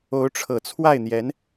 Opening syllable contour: rising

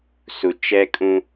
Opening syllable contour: low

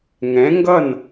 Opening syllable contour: rising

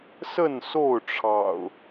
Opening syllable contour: falling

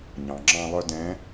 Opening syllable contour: low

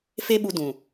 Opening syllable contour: high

